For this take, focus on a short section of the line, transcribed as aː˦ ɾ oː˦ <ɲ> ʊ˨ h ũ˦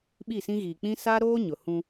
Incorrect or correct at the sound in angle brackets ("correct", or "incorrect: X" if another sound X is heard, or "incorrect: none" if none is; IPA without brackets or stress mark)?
correct